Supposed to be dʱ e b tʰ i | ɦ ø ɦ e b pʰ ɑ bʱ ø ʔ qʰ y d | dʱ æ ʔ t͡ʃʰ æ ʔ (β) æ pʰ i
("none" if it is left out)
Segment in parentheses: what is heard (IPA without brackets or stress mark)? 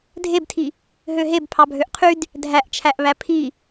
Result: β